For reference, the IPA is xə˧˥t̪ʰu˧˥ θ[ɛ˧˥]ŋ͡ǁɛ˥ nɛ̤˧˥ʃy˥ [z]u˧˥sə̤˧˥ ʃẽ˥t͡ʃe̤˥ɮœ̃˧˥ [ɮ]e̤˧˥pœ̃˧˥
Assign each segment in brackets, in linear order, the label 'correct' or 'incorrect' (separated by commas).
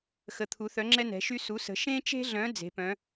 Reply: incorrect, incorrect, incorrect